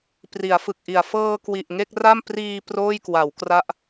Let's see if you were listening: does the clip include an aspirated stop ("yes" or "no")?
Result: no